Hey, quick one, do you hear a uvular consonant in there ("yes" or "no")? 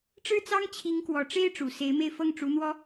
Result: no